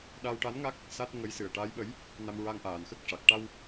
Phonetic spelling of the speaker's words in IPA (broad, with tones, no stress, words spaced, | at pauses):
ɗa˧wʈa˧˥nŋa˦˥k̚ | sa˦˥t̚ ŋə˧˥jsɨ˨˩ə̯ʈa˧˥jɓə˧˥j | na˧mɹa˧ŋʔaː˨˩nxə˦˥k̚ ʂa˨˩k̚ʈa˧w